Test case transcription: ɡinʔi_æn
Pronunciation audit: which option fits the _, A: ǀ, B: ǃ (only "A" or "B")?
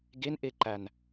B